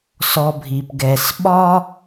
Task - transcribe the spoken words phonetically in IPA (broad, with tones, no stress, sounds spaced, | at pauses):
s ɔ˨ bʱ i˩ p ɡ ɛ˩ s ɓ ɒ˥